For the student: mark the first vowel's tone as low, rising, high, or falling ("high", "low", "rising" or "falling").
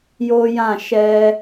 high